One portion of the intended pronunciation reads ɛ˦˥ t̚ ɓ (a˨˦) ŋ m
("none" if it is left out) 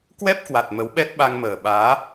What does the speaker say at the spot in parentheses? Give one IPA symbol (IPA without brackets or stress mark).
a˧